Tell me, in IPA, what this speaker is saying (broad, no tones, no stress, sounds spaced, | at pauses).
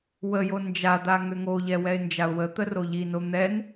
w ə j o n d͡ʒ a d̪ a ŋ ø ŋ o ʎ ɛ w ɛ ɪ̯ n d͡ʒ a ʊ̯ w ə t̪ ə r o ʎ i n o n̪ ɛ n